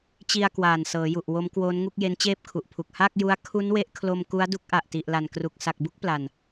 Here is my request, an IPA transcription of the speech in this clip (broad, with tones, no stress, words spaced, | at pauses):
t͡ɕi˧a̯kwaː˨˩n sɤː˩˦ju˨˩ʔ wo˦˥mkwoː˦˥nŋu˥˩k̚ je˦˥nt͡ɕeː˥˩p̚kʰu˨˩ʔpʰu˨˩k̚ ha˥˩k̚ju˦˥a̯ kʰu˦˥nwe˦˥ʔkʰlo˧m ku˦˥a̯du˦˥k̚ʔa˨˩ʔ ti˨˩ʔla˨˩nkru˨˩k̚ sa˨˩k̚bu˥˩k̚pla˨˩n